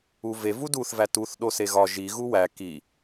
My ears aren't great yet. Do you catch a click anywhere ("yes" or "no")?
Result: no